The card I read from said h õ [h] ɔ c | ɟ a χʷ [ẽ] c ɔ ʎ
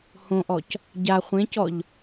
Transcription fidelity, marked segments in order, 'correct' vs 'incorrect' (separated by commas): incorrect, correct